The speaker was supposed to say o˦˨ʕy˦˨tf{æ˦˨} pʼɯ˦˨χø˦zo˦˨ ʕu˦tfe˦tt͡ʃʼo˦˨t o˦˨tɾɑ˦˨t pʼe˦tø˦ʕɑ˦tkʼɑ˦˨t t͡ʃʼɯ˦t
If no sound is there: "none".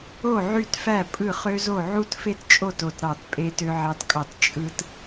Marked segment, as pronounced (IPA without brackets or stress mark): æ˦˨